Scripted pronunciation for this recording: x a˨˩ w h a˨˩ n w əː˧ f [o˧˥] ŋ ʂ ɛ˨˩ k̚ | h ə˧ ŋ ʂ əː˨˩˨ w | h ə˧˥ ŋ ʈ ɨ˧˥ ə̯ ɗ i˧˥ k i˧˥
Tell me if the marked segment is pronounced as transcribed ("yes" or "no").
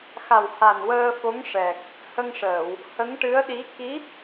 yes